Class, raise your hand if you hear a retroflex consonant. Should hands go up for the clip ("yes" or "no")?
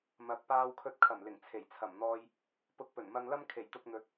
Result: no